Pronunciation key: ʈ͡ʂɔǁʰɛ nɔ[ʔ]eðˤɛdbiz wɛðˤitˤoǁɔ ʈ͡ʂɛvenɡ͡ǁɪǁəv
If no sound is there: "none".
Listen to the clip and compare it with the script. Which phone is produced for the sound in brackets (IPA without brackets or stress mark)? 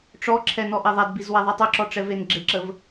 ʔ